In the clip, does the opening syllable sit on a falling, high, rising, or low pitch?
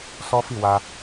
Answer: high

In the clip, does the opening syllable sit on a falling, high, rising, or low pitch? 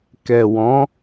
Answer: low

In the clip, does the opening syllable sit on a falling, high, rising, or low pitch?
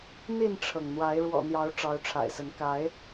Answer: falling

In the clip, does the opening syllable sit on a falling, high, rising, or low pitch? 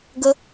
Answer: high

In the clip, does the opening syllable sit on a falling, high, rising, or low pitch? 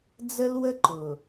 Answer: high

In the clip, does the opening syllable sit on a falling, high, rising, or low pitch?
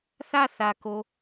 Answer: falling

